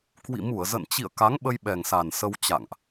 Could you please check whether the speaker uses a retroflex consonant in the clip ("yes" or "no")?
no